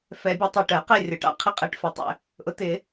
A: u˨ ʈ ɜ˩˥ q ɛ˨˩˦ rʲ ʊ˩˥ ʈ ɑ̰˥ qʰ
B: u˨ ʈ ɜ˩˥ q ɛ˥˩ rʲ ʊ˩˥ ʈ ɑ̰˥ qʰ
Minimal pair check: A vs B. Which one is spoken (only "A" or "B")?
B